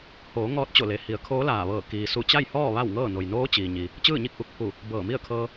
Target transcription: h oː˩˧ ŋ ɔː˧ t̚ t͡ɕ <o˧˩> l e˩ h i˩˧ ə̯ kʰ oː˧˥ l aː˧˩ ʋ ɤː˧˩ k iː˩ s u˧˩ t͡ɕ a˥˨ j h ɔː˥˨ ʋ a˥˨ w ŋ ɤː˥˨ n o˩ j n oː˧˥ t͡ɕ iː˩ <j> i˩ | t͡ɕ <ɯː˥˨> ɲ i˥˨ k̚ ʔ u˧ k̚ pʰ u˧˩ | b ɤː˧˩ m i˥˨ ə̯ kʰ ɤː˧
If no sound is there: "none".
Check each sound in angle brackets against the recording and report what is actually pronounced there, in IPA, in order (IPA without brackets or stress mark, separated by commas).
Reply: o˧˩, ɲ, ɯː˥˨